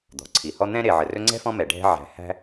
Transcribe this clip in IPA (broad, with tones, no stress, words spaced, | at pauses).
d̪ɔ̤˩ǀʰi˩hɔ˥ n̪ɛ̃˦ ɾe˨ ʕə˨rɵ˥ ŋ͡ǀɛ̤˥fɔ̃˦ mɛ˩ɖʱɛ̤˦ ʕæ̤˨hæ̤˦